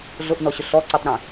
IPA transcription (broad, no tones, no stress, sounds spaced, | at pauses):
ɮ ʊ ʔ n ɔ ɕ ʊ ɬ ɔ ǀ i tˤ ɾ ĩ